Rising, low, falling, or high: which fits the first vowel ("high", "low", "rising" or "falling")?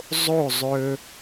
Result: falling